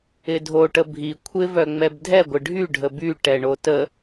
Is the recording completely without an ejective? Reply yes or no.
yes